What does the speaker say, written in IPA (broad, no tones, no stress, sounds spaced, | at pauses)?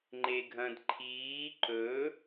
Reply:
ŋ͡ǃ e ɡʱ ɐ̃ d ǃʰ iː ǃ ɵ